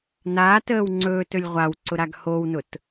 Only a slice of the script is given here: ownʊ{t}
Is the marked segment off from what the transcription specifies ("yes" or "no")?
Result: no